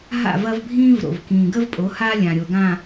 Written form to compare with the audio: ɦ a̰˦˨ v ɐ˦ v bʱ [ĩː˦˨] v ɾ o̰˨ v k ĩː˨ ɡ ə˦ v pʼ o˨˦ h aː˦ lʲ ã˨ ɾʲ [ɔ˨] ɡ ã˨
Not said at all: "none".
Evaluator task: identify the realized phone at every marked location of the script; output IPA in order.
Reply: ĩː˦, o˨

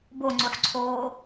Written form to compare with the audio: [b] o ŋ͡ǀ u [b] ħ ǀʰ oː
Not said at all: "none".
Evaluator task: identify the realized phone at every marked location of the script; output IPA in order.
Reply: b, none

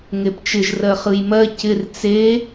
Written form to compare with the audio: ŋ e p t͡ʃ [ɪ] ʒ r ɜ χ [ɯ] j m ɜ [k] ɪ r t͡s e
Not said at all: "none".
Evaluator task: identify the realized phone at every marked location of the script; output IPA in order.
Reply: ɪ, ɯ, c

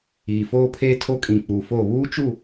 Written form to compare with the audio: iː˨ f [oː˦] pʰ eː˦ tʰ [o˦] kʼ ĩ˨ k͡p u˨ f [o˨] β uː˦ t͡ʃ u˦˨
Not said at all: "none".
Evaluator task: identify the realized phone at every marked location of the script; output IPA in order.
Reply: oː˦, o˦, o˦˨

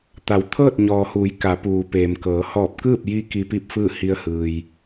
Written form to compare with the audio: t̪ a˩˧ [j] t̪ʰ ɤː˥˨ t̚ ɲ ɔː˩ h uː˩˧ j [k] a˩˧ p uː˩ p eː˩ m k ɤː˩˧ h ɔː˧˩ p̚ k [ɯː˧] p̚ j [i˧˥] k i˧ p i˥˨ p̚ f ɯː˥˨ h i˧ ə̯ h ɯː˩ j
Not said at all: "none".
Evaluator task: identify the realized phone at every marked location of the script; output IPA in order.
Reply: w, k, ɯː˥˨, i˧˥

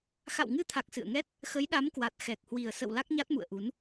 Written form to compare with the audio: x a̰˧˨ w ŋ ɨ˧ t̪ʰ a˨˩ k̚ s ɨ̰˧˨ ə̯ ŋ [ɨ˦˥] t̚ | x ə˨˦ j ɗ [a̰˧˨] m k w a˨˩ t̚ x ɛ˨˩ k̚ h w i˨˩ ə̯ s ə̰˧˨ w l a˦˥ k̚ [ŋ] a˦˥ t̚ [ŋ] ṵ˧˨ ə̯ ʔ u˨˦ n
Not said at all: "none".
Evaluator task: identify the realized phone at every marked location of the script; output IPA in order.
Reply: ɛ˦˥, a˨˦, ɲ, m

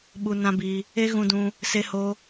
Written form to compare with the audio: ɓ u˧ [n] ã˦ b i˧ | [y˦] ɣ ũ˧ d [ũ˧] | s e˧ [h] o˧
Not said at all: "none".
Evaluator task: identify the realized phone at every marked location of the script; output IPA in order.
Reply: n, e˦, ũ˧, h

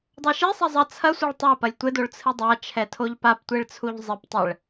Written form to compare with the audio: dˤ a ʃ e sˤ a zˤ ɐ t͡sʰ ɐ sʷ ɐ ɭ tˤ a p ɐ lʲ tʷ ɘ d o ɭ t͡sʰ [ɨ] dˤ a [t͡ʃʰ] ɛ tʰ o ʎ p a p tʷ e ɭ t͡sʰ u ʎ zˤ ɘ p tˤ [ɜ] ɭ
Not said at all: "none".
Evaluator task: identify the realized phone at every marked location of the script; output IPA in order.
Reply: ɨ, t͡ʃʰ, ɛ

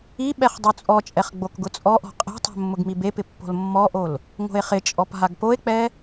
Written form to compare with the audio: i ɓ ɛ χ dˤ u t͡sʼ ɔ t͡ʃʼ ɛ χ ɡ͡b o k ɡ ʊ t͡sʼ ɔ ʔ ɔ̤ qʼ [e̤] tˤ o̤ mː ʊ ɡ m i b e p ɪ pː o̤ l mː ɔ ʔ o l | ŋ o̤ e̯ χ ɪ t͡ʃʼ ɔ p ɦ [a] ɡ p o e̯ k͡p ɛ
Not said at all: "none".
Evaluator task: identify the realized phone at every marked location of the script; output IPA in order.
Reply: e̤, a

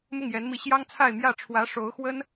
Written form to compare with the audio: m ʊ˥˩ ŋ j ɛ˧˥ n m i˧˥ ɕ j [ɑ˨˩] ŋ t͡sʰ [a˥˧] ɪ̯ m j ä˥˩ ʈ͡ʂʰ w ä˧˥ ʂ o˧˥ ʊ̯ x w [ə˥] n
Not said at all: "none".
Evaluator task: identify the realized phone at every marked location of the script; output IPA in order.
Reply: ɑ˥, a˥˧, ə˥

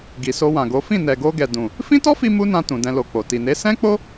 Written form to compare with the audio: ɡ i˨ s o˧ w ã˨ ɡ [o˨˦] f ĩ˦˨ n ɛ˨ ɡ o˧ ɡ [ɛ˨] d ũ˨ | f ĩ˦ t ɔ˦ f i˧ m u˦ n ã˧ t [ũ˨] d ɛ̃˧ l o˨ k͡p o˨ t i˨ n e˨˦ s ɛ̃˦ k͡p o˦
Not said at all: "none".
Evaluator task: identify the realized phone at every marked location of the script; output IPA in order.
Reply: o˨˦, ɛ˨, ũ˨

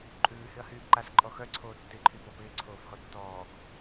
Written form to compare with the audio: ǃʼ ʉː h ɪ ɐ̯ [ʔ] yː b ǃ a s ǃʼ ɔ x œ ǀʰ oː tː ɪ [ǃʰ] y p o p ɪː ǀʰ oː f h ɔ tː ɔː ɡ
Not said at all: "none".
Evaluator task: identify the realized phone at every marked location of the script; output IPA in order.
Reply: h, ǃʰ

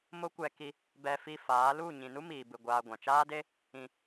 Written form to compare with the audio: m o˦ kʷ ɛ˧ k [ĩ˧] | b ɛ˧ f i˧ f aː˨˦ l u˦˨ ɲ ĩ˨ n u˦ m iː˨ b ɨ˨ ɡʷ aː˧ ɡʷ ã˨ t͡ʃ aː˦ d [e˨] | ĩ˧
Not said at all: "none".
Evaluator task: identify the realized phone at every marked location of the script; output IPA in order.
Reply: i˧, e˦

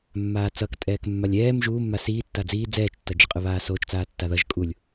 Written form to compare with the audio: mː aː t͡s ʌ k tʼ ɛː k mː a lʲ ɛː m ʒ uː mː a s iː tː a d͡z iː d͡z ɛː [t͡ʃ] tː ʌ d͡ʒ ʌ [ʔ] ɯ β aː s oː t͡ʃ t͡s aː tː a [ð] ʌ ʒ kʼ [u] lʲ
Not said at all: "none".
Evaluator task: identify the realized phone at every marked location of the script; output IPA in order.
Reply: t͡ʃ, qʼ, ð, u

